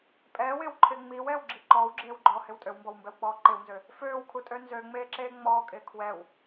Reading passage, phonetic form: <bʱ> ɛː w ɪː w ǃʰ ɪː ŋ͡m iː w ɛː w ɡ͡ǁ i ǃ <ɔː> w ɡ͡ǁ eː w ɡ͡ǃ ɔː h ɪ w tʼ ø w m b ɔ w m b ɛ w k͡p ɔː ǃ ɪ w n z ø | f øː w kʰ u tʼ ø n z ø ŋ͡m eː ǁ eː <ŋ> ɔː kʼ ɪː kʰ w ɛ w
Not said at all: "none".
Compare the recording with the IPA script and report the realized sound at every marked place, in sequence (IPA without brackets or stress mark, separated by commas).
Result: pʼ, ɔː, ŋ͡m